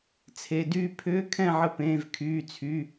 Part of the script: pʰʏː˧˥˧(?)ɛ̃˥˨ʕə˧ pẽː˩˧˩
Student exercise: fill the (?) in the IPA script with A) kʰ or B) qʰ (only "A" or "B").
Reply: A